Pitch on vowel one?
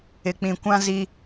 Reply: low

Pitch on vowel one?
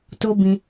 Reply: high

